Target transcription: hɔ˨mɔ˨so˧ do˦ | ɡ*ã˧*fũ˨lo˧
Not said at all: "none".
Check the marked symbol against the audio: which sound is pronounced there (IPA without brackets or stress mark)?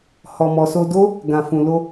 ã˨